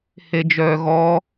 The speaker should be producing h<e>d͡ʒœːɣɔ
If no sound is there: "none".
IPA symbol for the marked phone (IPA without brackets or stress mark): e